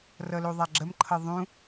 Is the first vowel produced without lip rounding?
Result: yes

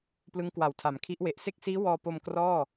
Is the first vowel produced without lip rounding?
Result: yes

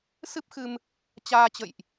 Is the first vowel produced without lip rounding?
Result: yes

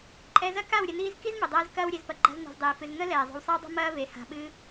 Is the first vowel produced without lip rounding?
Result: yes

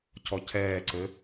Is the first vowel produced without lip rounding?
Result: no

